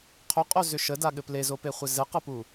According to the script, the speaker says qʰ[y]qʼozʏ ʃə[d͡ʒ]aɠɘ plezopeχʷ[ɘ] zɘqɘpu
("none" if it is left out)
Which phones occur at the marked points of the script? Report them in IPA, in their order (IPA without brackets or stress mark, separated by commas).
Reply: ʏ, d, ɘ